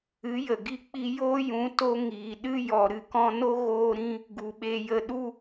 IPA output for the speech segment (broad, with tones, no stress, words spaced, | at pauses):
ɨ˨˦ jə˨ɡi˦k͡pi˦ joː˦ jũ˨˦to˧ ŋiː˨ ɗɨ˦jɔ˨ ɾɨ˨kɔ̃˧no˦ ɣoː˦ɾĩ˦ | ɡu˨ɓe˧jə˧ ɗu˦